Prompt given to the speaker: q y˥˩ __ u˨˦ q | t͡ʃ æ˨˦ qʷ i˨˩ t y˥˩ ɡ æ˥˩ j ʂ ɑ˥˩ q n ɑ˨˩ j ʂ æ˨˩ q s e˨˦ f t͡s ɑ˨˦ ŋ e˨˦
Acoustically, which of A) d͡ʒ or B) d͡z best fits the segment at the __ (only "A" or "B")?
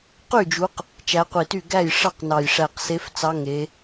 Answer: A